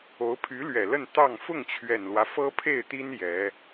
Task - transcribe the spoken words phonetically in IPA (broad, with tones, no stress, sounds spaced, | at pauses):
o˧˥ ʊ̯ pʰ y˧˥ l ɥ ɛ˨˩ l ə˥˧ n t̪ ɑ˥˧ ŋ f ʊ˥˩ ŋ t͡ɕʰ ɥ ɛ˨˩ n l w ä˦ f ɤ˥ pʰ e˥˩ ɪ̯ t̪ i˥ n j ɛ˧˥